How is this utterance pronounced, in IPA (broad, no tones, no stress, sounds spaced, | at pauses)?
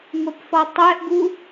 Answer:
ŋʷ ɛ p f ɔ tˤ ɛ ʔ ɡ u